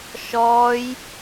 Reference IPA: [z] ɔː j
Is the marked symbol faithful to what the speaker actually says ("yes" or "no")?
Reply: no